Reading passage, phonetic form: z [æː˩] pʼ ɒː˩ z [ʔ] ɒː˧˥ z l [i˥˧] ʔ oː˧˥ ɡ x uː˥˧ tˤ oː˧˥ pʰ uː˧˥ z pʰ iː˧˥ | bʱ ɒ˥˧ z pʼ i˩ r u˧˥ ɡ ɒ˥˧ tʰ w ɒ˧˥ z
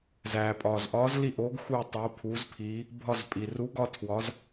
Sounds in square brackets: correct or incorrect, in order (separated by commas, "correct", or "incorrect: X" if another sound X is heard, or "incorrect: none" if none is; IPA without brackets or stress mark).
correct, correct, correct